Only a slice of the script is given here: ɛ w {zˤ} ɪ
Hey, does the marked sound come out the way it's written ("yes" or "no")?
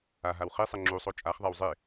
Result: yes